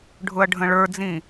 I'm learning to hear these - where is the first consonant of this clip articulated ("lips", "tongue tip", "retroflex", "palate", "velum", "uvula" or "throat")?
retroflex